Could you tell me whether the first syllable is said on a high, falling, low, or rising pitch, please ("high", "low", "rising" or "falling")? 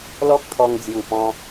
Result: high